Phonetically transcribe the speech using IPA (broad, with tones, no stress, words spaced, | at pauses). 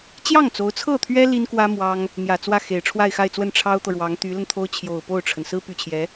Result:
t͡ɕjɑ˥˩ŋt͡so˧˥ʊ̯t͡sʰɤ˥˩t̪ʰɥɛ˥ li˥nkwä˥ mwɑ˥ŋ | n̪jä˨˩ t͡swä˥˩xe˨˩ɪ̯ ʈ͡ʂʰwa˥˧ɪ̯xa˥˧ɪ̯t͡swə˥˩n ʈ͡ʂʰɑ˥ʊ̯t̪ɤ˨ɻwɑ˧˥ŋ t̪y˧˥lə˧nt̪ʰo˥ʊ̯ t͡ɕʰjo˨˩ʊ̯po˥˩ʊ̯ʈ͡ʂʰə˩n sɹ̩˥py˨˩t͡ɕʰjɛ˧˥